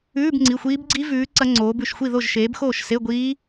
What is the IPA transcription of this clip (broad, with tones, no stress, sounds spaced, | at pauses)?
ʉː˧˥˧ b ŋ͡ǀ i˩˧˩ xʷ iː˦˥ b ɡ͡ǀ i˦˥ v ʉː˨˦ ǀ ɐ˦˥ ŋ͡ǀ oː˨˦ b ʉ˥˨ ʃ xʷ i˥˨ ð o˥˨ ʒ ʃ eː˨˦ b x oː˥˨ ʃ s e˧˥˧ ɡʷ iː˦˥